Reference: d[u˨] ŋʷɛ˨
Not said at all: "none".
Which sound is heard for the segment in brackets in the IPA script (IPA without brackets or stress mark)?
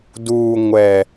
uː˨